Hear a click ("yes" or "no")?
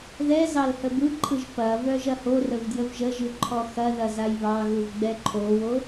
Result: yes